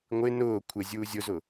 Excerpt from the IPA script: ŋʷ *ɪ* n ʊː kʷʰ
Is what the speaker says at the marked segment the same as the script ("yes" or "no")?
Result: yes